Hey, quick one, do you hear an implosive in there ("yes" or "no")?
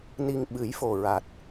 yes